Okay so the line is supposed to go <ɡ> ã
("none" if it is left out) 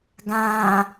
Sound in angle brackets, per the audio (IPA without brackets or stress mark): ɡ